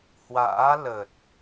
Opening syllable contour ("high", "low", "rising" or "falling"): rising